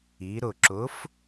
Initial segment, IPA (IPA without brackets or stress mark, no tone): i